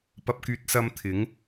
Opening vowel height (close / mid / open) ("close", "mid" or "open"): open